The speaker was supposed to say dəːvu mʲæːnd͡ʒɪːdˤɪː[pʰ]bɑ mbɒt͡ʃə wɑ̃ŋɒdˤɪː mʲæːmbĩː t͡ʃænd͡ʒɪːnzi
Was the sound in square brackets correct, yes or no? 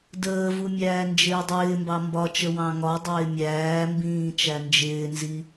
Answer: no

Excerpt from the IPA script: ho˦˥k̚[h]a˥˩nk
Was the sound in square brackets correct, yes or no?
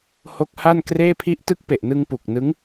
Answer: yes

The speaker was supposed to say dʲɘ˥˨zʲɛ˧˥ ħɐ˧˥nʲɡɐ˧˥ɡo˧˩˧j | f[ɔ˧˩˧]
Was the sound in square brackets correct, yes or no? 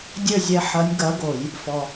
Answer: no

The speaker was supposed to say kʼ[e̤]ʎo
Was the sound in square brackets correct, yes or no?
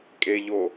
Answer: no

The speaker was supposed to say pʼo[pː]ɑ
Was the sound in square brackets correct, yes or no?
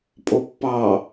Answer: yes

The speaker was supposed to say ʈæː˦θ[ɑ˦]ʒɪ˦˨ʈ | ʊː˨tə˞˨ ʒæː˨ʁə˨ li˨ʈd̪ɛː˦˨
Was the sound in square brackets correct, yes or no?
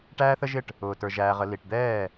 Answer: no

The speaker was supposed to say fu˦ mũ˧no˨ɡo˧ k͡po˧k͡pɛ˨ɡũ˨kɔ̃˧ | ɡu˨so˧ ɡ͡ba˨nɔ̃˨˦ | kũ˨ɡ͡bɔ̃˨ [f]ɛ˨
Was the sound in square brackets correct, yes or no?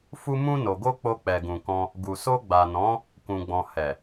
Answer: no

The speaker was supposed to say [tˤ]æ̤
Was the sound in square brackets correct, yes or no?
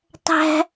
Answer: yes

